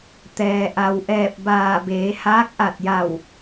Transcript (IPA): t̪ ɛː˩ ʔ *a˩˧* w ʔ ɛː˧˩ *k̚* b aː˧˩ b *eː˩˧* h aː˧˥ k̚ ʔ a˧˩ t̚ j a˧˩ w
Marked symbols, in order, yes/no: no, no, yes

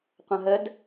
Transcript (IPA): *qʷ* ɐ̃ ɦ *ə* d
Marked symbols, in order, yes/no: yes, yes

